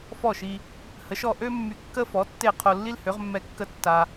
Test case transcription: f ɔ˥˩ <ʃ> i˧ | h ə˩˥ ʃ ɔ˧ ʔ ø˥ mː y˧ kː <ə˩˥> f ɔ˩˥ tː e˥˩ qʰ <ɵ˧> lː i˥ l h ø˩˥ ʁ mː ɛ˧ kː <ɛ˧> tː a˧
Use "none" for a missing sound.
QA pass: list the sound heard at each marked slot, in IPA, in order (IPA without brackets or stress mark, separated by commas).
ʃ, ə˥, o˧, ə˧